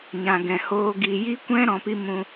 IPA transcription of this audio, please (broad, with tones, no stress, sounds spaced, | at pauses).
ɲ ã˨ ɡ ɛ̃˨ h oː˧ ɡ i˨ j i˦ kʷ ɛ̃˦ ɾ ɔ̃˧ p i˦ m ũ˧